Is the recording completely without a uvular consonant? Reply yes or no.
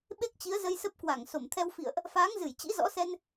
yes